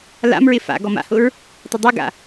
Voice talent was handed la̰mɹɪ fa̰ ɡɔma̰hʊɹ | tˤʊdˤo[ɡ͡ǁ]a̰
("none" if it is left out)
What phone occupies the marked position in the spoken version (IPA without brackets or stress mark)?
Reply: ɡ